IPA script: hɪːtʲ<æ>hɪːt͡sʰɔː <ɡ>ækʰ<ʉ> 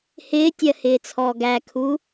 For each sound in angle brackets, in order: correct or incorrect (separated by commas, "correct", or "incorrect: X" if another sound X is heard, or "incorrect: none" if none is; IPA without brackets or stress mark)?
incorrect: ɜ, correct, incorrect: u